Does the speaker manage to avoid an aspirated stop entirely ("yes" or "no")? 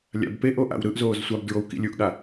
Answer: yes